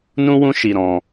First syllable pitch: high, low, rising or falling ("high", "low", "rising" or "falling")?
high